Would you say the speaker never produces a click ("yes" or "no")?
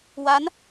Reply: yes